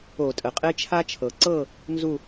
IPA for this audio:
o˧˩˧ tʼ ə˩ qʼ e˦ t͡ʃʰ a˦ t͡ʃʰ ɤ˩ ǀ ɤ˥˨ | n z u˥˨

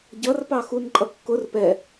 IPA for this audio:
ɟ ʌ r p ɑ x u n ǃʼ ʌ kː ʊ r p ɛ

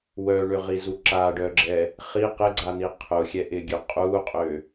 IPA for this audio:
w œ ɳ ʏ ʁ i z u ǁ a ɖ œ ɡ͡ǁ ɛ | χ i q ɪ ɡ͡ǀ a n̪ i qʰ ʊ xʲ ɛ ʔ ɪ ɡʲ ø qʼ u qʼ ø

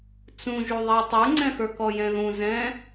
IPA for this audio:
t͡s ũ ʒ u ðˤ ɛ tˤ ə˞ ŋ͡ǀ ɛ̃ x ə˞ k ɔ j ɛ̃ ð ũ z ɛ̃

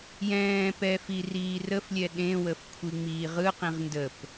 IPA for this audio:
j ɛ̃ː p ɛ f i r iː r ə f lʲ ɛ ɗ ẽ w ə f kʷʰ i ŋ͡m iː ʁ ɯ q ĩ ʁ n d ə p

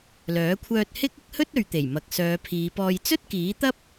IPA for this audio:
l œː˨˥ kʷʰ œː˧ t̚ h ɪ˥ k̚ ɪ˥ k̚ h ɵ˥ t̚ ɵ˨ ɥ t̪ e˨˩ j m ɐ˨ k̚ s œː˨˧ pʰ iː˨˧ p ɔː˧ j t͡s ɵ˥ t̚ k iː˨˥ t̪ ɐ˥ p̚

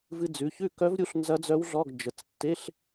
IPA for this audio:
v ɨ˧ d͡z ʉ˩˧˩ ç ʉ˥˨ k œ˦˥ v ɾʲ u˦˥ ɬ n z ɐ˦˥ d͡z œ˦˥ w ɮ ɔ˧˥˧ ɡ d͡ʒ ə˩˧˩ t͡s tː e˧˥˧ ɬ

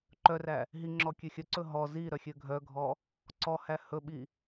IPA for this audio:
ǃ œ r æ | ɦ i ŋ͡ǁ ɔ kʲ ø xʲ œ ǀ ɵ ɦ ɔ z i ɾ œ xʲ ø ɡʱ œ ɡʱ ɔ | ǀ ɔ h æ h ɵ ɓ i

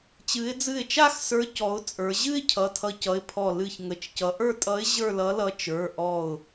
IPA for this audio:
t͡ɕ ɨ˩˧ ɪ̯ d͡z ɨ˧˩ ɪ̯ t͡ʃ a˥˧ x s ə˞˧˥ c ɔ˩˧ ʊ̯ t͡sʼ ə˞˩˧ ʑ ɨ˥˧ ɪ̯ cʰ ʌ˩˧˩ tʰ ʌ˧˥ c ʌ˩˧˩ ɪ̯ pʰ ɔ˧˩ l ɨ˧˩ ç ŋ ə˩˧˩ t͡ʃ c ʌ˩˧ ʔ ə˞˥˧ tʼ ʌ˧˥ ɪ̯ ʑ ə˞˥˧ l ʌ˧˥ l ʌ˧˥ t͡ʃ ə˞˩˧˩ ʔ ɔ˧˩ ʊ̯

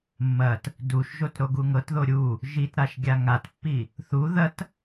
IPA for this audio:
mː ɐ t | d u ʃ ʒ o t ɾ o ɡ u ŋ ɤ t ð o ɾʲ u | ʒ i t ɾ a ʃ ɡʲ a ŋ a t pː i | θ u ð ɐ t

